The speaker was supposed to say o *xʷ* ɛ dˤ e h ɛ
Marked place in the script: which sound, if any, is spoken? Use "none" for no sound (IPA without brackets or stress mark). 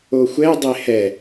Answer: xʷ